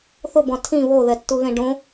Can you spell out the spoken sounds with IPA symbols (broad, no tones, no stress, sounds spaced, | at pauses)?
θ ʊ b ɔ̃ tʰ ĩ β o ð ɛ tː u ɣ ẽ ɖ õ